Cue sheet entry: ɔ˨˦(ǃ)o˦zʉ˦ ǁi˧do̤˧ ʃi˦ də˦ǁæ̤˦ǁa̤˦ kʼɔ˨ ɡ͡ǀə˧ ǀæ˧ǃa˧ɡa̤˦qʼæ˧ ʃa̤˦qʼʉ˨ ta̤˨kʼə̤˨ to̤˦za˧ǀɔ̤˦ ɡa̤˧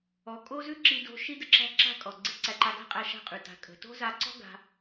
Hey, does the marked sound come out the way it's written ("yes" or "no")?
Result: no